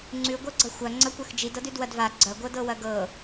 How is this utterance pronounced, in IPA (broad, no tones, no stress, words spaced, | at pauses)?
ŋ͡ǀʉ ɡʷɤɡ͡ǀɐxʷɐ ŋ͡ǀɐkʷɤxd͡ʒid ɤdʉdwɐdva ɡ͡ǀɐ ɡʷɤdɤwɐɡɤ